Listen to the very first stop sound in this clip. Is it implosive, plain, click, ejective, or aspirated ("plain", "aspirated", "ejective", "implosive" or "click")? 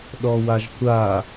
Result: implosive